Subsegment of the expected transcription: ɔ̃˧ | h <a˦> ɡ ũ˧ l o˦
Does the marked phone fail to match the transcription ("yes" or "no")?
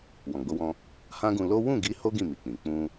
yes